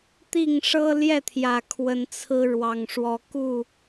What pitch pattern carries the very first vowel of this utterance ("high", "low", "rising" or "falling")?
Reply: falling